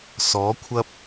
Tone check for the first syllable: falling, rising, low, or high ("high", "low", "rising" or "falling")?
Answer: rising